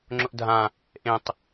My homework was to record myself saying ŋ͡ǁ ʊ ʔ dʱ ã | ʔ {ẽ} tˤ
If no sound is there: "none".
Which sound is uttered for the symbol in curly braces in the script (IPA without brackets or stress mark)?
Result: ẽ